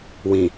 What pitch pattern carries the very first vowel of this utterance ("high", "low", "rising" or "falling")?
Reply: low